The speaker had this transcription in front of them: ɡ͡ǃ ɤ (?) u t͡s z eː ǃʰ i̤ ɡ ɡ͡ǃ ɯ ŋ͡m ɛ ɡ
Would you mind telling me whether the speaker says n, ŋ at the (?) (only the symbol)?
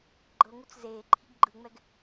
ŋ